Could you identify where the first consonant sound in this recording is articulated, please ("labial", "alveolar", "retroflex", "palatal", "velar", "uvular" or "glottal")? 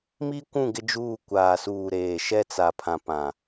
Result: labial